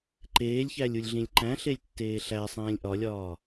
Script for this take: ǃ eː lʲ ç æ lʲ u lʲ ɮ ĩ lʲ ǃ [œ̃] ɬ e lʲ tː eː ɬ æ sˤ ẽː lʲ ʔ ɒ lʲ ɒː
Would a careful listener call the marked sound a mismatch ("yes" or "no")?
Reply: yes